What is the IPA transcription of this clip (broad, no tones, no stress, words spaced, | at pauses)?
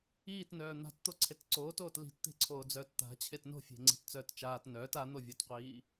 iːtnœː n̪a̤tt̪o ǀʰetǀoːtoːt li̤tt̪e̤ǀʰoːd͡zœːt t̪a̤ t͡ɕʰetno̤fʲe̤ ŋ͡ǀi̤tt͡sœːtt͡ʃaːt nœːt an̪ovʲotqʷiː